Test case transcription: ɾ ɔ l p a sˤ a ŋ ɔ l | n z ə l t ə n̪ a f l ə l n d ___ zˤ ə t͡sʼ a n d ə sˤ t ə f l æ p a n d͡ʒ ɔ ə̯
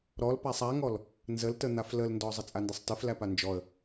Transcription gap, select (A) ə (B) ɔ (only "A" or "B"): B